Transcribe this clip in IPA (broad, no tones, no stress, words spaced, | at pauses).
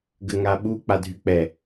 ɡəŋaɓu k͡padʱyk͡pɛ